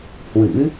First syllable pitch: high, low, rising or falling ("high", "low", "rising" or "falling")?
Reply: rising